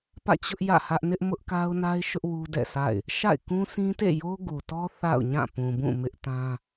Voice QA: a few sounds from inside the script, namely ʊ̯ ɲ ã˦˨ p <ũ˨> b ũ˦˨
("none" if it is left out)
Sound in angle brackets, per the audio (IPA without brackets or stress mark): ũ˨